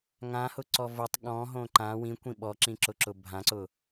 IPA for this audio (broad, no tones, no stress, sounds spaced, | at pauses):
ŋ ã h ʊ ǀ ɔ v ʊ tˤ ɠ ɔ̃ ɦ õ ǃ ã w ĩ kʷ ĩ ɓ ɔ ǁ ĩ ǁ ʊ ǁ ʊ bʱ ã ǀ ʊ